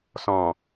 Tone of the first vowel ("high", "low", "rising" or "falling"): low